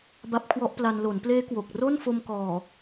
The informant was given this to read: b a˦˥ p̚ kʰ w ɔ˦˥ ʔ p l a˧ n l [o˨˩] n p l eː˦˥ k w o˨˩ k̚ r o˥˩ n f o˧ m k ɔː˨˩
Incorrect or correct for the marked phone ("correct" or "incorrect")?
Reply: incorrect